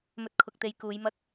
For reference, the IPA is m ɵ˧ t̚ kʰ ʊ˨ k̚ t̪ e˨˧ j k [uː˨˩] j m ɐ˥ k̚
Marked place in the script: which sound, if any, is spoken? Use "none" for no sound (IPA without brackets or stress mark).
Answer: uː˨˧